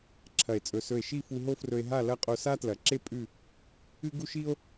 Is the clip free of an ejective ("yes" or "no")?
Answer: no